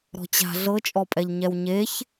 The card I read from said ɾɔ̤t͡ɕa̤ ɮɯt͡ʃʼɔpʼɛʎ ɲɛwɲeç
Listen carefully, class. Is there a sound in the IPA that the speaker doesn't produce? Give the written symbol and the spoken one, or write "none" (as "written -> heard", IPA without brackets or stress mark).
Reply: ɯ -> ɤ